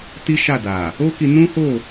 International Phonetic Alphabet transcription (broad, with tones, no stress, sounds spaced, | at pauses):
t i˦ ʃ a˦˨ d a˨ | o˦ k i˧ n ũ˦ h o˦˨